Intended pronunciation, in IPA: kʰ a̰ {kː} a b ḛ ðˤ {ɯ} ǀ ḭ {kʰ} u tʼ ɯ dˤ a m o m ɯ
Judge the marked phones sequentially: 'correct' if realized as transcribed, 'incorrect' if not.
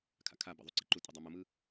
incorrect: kʰ, incorrect: u, incorrect: ǃ

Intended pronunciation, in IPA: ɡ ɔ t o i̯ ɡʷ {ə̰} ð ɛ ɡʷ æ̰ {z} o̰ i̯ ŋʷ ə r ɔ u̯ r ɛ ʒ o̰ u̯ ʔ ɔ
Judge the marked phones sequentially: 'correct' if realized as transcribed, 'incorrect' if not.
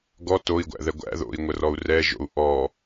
incorrect: æ̰, incorrect: ð

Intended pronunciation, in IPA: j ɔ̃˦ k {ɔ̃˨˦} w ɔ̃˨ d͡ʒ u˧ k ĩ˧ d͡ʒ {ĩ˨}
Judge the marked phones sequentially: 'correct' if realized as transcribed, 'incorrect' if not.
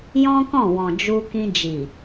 incorrect: ɔ̃˦˨, incorrect: i˨

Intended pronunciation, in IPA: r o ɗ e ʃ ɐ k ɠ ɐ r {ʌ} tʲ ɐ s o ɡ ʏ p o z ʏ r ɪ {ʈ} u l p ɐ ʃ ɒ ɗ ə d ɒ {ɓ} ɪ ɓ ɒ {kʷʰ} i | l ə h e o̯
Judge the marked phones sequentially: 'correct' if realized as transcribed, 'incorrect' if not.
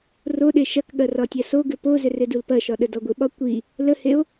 incorrect: ɒ, incorrect: d, incorrect: ɡʷ, incorrect: kʷ

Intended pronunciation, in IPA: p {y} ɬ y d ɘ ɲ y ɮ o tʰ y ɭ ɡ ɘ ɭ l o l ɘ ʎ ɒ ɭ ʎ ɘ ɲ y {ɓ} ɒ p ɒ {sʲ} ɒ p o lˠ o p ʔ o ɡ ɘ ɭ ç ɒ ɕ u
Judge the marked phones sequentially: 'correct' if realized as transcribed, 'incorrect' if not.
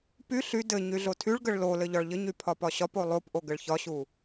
correct, incorrect: pʰ, incorrect: ɕ

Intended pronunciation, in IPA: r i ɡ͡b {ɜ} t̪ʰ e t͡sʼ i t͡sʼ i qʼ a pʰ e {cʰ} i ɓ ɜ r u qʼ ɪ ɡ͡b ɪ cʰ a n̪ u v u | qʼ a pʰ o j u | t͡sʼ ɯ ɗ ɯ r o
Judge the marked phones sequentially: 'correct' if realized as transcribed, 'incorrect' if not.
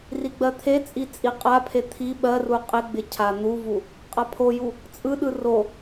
correct, incorrect: t̪ʰ

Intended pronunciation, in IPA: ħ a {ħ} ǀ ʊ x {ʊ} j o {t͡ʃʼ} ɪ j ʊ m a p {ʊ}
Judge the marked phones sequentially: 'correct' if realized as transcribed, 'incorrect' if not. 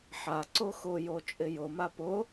incorrect: none, correct, correct, correct

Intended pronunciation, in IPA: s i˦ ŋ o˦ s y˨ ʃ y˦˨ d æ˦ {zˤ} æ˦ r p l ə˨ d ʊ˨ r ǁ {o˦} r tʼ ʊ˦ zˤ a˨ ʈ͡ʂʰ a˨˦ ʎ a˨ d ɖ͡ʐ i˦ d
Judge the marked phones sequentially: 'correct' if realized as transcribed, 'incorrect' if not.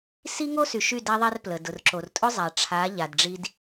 incorrect: ðˤ, incorrect: o˨

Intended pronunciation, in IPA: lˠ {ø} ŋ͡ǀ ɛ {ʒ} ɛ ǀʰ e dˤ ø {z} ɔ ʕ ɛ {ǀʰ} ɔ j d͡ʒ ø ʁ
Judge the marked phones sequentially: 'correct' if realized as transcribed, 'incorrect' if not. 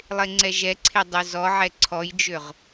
incorrect: e, correct, correct, correct

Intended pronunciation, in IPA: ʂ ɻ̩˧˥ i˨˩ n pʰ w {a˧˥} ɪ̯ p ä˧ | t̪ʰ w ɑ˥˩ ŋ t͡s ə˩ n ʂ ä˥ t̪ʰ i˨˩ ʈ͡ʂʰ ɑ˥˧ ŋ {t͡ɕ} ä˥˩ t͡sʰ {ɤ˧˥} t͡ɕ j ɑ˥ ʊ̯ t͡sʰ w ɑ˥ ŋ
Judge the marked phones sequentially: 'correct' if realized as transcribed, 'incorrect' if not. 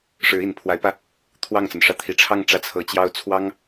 correct, incorrect: ʈ͡ʂ, correct

